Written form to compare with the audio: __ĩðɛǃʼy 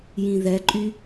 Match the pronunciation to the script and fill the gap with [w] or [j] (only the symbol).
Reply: j